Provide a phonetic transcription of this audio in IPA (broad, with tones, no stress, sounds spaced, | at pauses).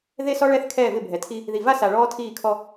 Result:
ð e˦ s ɔ˦ ɭ ɛ˦˨ θ kʰ ɛː˦˨ v ɪ˦˨ bʱ ɛ˨ tʰ i˦ | ð i˨ v a˦ s a˨ ɭ ɔː˦ tʰ iː˦˨ kʰ ɔ˦